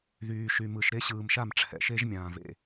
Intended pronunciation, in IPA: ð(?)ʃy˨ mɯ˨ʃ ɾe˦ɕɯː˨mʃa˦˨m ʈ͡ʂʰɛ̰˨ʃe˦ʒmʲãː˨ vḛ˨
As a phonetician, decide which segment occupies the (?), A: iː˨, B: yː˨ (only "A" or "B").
B